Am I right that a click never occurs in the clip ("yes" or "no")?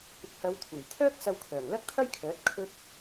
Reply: yes